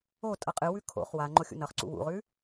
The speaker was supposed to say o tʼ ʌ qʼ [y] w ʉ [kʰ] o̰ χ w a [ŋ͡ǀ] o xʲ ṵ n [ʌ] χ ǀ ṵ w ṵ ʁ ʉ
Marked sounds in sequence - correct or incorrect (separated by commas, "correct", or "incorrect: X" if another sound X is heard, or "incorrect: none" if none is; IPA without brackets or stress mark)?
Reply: incorrect: ɨ, correct, incorrect: ŋ͡ǃ, correct